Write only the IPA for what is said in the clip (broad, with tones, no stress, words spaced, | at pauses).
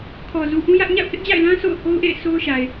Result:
kʰɔ˨zu˨ʔũ˦jä˦ʔ ɲa̰˦˨ʊ̯hɪ˦ʔd͡ʑa̰˦˨ɪ̯lã˦ sʰo̰˦˨ʊ̯ho˦ʊ̯ʔḛ˦˨ɪ̯ sʰo˦ʊ̯ʃa˨ɪ̯